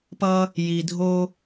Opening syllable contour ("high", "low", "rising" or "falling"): high